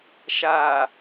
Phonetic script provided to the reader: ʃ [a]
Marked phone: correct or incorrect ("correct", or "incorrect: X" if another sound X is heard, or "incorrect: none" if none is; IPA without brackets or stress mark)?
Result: correct